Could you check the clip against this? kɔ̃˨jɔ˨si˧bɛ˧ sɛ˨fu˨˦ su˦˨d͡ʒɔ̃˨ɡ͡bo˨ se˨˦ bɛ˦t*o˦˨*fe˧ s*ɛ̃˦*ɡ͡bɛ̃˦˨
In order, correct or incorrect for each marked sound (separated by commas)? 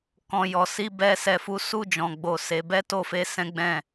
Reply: correct, correct